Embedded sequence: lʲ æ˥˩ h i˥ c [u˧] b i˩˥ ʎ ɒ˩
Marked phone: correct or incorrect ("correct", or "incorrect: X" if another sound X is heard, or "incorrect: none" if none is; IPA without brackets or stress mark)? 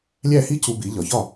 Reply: correct